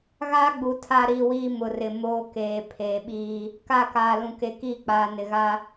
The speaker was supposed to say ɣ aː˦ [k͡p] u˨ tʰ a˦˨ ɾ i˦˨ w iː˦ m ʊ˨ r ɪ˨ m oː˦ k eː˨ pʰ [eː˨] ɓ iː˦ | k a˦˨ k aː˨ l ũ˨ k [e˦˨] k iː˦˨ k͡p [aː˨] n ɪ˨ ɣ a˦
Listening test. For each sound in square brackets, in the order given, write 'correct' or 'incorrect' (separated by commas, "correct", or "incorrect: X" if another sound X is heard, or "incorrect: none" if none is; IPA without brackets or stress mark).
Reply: incorrect: ɡ͡b, correct, incorrect: e˨, correct